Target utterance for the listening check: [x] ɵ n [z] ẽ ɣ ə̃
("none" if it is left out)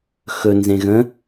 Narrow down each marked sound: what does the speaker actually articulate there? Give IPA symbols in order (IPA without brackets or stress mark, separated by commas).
x, z